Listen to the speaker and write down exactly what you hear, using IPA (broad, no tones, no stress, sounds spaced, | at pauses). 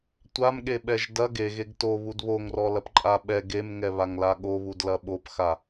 tʷ a m ɠ e ɓ ɛ ʒ d ɐ ɡ e ɣ e ɡ t o β u d β o ŋ r ɔ l ɐ p ǃʼ a ɓ ɛ ɡ e m ŋ ɛ β a ŋ l a ɠ o β u d l ɐ ɓ o p x a